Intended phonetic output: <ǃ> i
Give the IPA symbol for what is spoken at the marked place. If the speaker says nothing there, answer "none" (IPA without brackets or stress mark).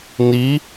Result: n